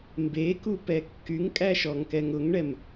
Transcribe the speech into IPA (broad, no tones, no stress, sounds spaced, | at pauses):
m b e k u p ɛ kː y ŋ kʼ æ ʃ ɔ ŋ k ɛ ŋ ʊ ŋ ɳ ɛ m